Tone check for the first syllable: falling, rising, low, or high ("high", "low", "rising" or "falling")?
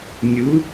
rising